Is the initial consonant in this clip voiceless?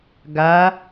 no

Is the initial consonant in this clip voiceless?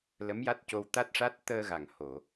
no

